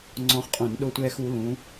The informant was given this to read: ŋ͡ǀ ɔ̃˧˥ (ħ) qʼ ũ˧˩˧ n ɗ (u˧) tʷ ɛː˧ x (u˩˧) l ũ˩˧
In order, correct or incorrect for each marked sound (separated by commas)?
incorrect, incorrect, correct